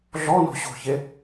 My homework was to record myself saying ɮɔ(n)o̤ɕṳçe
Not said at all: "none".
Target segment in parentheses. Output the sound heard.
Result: n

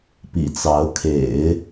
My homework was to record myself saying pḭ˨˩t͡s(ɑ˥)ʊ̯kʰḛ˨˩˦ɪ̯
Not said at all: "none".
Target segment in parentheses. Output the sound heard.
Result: ɑ˧˥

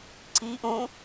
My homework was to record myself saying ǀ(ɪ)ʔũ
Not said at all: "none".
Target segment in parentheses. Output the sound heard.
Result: i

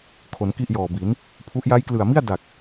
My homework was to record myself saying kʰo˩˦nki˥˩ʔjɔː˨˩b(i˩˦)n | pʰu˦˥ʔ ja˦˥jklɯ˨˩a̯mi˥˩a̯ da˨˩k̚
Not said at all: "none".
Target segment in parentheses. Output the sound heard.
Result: i˩˦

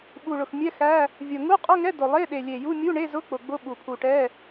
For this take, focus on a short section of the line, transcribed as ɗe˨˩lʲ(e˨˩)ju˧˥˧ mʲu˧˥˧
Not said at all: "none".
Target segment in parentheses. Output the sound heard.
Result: e˨˩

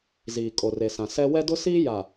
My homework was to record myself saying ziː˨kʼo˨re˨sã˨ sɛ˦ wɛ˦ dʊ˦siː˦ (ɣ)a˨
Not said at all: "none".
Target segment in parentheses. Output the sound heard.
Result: j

